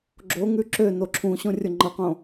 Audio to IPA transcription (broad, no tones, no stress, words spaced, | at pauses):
ɡ͡ǁoŋʉ ǁøno ǁʰũɕõrʲo ŋ͡ǃʌqõ